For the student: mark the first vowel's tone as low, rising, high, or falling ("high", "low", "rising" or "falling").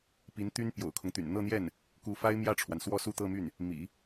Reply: rising